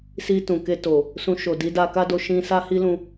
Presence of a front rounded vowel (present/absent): absent